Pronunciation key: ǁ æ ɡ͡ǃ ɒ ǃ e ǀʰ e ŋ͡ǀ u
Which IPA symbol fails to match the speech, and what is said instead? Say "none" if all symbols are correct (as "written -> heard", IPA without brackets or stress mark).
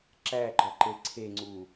none